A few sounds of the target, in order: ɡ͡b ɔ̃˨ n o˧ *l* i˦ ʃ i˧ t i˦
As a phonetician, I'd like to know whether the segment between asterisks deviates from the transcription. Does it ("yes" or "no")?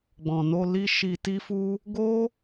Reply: no